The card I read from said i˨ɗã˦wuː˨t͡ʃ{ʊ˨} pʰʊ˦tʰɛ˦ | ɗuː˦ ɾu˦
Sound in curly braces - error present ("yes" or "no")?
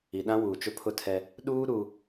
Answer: yes